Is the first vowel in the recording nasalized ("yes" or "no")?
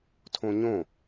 yes